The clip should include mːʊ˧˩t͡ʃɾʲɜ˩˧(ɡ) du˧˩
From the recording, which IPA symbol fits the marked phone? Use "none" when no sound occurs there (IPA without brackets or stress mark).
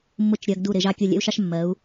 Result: ɡ